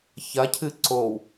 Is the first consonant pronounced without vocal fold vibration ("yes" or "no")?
yes